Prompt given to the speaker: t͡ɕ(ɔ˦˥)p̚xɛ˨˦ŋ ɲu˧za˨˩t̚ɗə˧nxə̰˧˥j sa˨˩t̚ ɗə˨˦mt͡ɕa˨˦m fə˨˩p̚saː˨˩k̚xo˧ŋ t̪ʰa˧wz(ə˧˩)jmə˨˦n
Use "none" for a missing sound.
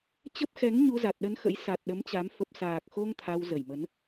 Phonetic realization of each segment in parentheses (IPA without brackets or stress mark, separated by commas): ə˦˥, ə˧˩